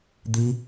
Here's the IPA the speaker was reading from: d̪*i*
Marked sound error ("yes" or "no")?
no